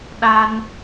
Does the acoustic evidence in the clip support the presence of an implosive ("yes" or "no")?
yes